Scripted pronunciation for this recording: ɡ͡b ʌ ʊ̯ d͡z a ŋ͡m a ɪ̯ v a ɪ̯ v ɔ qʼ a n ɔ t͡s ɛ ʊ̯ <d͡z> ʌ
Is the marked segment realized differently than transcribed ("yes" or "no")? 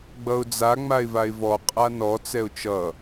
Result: yes